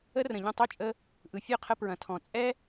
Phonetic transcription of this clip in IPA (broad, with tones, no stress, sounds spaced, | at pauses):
ə˥ r ə̃˩ ʎ ə̃˥˩ tˤ œ˥˩ t͡ʃʼ ə˧ | ʔ ɯ˩ fʲ œ˥˩ qʰ ə˧ p ɹ ɐ̃˩ tʰ ɔ̃˩ t͡sʼ ɛ˥